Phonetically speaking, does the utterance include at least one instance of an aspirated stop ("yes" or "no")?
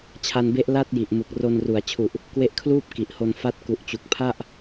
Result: yes